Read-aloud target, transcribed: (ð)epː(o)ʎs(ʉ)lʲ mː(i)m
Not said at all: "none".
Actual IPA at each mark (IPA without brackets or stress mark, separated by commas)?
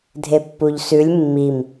dʱ, u, ʉ, i